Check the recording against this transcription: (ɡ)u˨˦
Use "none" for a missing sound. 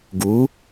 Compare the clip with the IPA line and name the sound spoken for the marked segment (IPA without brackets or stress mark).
ɡ